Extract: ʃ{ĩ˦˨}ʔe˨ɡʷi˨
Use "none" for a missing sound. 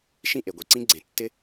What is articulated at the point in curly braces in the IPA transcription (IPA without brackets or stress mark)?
ĩ˦˨